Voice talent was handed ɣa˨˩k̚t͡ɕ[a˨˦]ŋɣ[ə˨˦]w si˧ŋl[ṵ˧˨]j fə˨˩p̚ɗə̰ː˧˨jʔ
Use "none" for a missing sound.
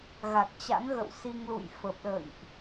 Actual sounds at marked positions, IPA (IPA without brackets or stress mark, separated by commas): a̰˧˥, ə̰˧˨, ṵ˧˨